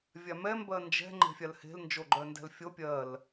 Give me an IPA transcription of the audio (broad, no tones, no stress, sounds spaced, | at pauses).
vʲ a m ɛ m b ɜ n d͡ʒ ɛ̤ ŋ͡ǃ e̤ fʲ a l h e̤ l n d͡ʒ o ɡ͡ǃ œ n d ɛ̤ l fʲ o pʲ ɜ l